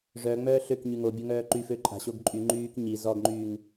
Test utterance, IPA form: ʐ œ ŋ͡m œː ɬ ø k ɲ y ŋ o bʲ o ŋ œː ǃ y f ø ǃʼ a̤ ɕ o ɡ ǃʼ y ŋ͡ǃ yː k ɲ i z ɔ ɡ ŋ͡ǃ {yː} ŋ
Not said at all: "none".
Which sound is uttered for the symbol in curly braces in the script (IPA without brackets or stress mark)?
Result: yː